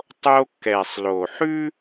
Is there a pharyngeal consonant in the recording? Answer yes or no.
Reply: yes